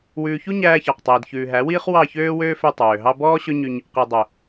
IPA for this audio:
wʉː˨çu˦ ɲæː˧çɑ˨qtˤiː˨d çʉː˨ɦæ˨˦wiː˦χ wɑ˦˨çøː˦wøː˦fø˧ tˤøː˨ɦɑ˦ bɔː˦ɕɵ˦ɲy˧ɲ | qi˨ dˤø˨

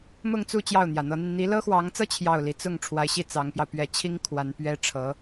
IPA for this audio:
mʊ˥˧ŋt͡su˥˧ t͡ɕjɑ˥˩ʊ̯n̪jä˨˩n̪ɤ˧˥n̪i˧n n̪i˧˥lɤ˥xwɑ˧˥ŋt͡sɤ˥ t͡ɕʰjɑ˥˩ʊ̯ li˧˥ t͡sʊ˥˩ŋ ʈ͡ʂʰwa˧˥ɪ̯ɕi˥˩ t͡sɑ˧˥ŋpjɑ˧ʊ̯ pɥɛ˧˥t͡ɕʰi˥ŋ kʰwa˧˥npɥɛ˥ ʈ͡ʂʰɤ˧˥

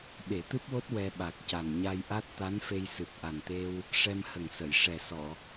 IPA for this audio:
ɓe˨˩˦t̪ɨ˦˥p̚wo˦˥t̚ wɛ˧ɓa˨˩k̚ca˨˩n ɲa˧jʔa˦˥t̚ t̪a˧˥nfe˧jsɨ˨˩p̚ ʔa˨˩nt̪e˧w | ʂɛ˧mhə˨˩ŋsə˨˩˨j ʂɛ˨˩sɔ˨˩˨

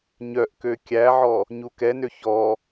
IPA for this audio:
ɲœʔ køkʲæʕɔ | ɲukɛnø çɔ

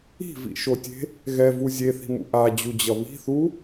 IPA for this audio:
i̤vḭʃotʲe̤ | ɣɛvu zʲeθi̤mṵ ʔad͡ʑud͡ʑʌ βi̤θu

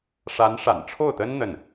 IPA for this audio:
ʂa˧˥nʂa̰˨˩nʈ͡ʂʰo˥˩ʊ̯t̪ə˥n n̪ə˥˩n

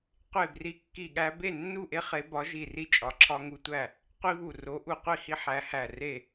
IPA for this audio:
qʷe˧˩bri˨˦kːi˧˩ɠæ˦ be˥˨nːu˥˨ʔe˦ χe˨˦bɒ˨˦ʒi˧˩ri˦ t͡ʃʼɒ˨˦ǁʰɒ˦ŋu˦tʷæ˥˨ | qʷi˦βu˧˩ ro˨˦ʔu˧˩qʷi˥˨hi˦ ħæ˨˦hæ˧˩re˥˨

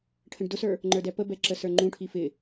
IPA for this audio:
ʈʰə̃ɖdʊsə˞ | ŋ͡ǃə˞dɛpəbɛ ǁəsə˞ŋ͡ǃũʈʰi fɪ

